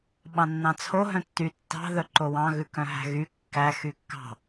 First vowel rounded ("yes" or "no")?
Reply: no